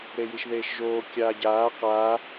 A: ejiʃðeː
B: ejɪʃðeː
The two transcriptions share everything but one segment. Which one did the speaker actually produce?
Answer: A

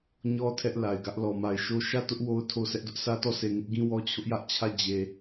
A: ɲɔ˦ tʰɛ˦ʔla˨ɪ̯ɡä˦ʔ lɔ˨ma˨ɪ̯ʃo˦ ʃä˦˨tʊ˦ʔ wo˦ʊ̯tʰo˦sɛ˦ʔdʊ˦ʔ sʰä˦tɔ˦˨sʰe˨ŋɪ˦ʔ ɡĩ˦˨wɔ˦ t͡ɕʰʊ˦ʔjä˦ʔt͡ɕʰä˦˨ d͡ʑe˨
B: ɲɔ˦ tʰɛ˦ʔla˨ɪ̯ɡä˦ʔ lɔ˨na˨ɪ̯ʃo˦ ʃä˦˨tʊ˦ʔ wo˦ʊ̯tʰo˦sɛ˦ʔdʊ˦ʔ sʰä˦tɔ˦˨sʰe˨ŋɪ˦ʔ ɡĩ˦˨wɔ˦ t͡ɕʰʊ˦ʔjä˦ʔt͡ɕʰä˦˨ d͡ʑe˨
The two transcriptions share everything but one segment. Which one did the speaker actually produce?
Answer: A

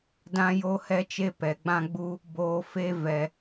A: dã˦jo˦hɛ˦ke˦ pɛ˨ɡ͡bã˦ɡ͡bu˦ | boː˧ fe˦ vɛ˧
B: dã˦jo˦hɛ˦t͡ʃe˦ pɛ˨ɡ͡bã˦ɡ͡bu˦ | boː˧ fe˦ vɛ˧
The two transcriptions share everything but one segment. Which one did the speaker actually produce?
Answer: B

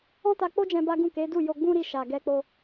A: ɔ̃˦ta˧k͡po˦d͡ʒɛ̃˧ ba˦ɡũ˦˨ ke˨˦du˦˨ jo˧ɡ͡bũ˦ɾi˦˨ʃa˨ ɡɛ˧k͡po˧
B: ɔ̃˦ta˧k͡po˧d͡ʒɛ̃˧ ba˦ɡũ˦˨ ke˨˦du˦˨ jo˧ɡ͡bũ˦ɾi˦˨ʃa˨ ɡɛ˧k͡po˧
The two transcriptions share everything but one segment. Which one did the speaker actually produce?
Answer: A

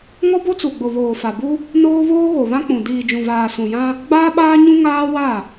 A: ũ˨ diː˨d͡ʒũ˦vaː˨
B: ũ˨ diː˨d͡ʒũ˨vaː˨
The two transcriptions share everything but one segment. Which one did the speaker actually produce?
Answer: B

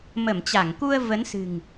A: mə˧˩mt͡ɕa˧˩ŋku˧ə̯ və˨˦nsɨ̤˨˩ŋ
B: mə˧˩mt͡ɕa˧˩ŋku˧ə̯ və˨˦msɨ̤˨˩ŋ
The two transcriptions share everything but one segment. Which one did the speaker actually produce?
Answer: A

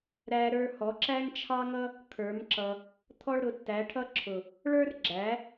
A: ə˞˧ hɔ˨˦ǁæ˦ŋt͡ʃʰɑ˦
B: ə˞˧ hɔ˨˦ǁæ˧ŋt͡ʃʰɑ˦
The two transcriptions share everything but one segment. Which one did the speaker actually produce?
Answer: A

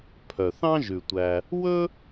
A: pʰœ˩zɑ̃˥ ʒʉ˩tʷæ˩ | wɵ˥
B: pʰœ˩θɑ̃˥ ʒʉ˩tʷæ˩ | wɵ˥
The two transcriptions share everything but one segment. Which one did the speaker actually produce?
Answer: B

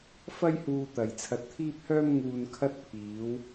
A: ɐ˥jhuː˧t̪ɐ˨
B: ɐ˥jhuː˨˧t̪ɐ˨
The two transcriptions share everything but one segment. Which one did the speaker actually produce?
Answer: A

